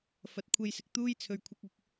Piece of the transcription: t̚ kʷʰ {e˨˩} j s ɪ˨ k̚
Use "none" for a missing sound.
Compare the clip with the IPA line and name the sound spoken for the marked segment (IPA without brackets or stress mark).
e˧